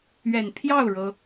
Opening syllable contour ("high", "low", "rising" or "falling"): low